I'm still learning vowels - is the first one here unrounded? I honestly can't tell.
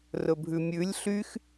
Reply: no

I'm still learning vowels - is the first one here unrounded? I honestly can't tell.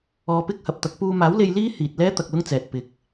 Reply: no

